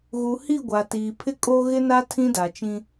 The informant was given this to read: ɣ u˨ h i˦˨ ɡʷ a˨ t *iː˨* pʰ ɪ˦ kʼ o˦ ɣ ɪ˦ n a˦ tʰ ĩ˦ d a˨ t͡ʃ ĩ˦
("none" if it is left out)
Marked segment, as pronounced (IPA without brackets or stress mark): iː˨